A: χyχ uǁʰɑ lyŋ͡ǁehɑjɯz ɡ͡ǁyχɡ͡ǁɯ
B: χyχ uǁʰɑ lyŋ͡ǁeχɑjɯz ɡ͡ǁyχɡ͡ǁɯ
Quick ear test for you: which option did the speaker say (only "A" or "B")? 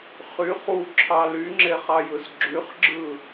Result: B